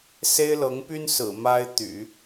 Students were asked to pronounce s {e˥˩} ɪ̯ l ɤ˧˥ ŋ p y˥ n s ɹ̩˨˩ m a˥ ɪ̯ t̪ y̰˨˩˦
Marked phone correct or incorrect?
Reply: incorrect